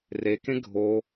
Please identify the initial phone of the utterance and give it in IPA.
r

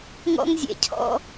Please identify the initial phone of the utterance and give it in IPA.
ŋ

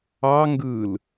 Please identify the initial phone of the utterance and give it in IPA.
ɑ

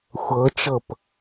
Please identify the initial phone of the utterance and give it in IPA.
xʷ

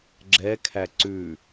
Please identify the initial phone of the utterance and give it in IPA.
ɡ͡ǁ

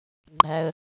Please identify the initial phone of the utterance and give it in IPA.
ɡ͡ǃ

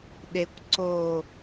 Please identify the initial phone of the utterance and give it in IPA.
ɗ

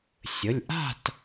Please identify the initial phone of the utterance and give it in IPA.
sʲ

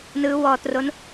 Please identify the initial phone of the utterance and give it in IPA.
n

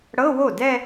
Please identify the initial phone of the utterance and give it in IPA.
ɽ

